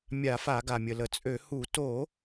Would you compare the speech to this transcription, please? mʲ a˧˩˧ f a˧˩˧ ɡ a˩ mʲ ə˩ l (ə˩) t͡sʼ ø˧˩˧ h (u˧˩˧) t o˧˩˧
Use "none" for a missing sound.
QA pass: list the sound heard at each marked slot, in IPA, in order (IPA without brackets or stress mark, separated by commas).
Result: ə˩, u˧˩˧